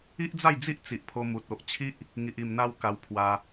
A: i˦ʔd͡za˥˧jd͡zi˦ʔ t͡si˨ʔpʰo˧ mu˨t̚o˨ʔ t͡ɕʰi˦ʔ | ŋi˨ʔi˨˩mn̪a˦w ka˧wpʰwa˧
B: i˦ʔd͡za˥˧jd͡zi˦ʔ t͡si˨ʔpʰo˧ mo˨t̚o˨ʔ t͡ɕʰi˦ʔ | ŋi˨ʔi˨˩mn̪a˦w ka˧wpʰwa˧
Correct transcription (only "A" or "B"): A